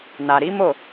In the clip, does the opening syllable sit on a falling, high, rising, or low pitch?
low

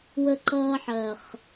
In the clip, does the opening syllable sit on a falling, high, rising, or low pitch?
high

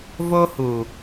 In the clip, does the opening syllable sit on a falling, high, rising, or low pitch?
high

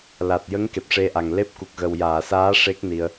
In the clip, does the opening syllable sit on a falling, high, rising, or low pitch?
low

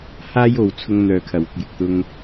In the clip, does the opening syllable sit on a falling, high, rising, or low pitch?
high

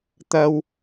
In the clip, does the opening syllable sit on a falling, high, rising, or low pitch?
low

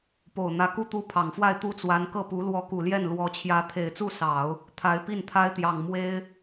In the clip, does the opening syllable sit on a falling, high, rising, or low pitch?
low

